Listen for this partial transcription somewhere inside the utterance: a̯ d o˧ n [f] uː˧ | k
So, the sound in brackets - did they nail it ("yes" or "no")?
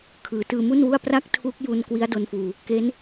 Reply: yes